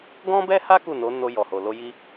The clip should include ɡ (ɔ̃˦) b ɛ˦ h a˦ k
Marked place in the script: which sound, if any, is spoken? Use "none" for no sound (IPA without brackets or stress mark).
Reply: ɔ̃˦